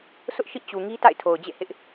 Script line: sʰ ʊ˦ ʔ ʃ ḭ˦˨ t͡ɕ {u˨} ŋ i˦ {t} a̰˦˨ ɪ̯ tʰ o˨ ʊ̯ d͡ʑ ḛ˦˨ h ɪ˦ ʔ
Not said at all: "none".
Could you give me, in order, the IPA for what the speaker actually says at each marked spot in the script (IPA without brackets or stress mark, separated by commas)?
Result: u˨, t